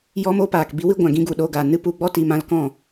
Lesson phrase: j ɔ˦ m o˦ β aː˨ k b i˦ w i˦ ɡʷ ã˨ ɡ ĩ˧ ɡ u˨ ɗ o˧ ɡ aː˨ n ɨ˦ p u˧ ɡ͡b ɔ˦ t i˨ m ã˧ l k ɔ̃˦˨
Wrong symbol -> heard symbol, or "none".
β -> p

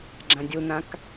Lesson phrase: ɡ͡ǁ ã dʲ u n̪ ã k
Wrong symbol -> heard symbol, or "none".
none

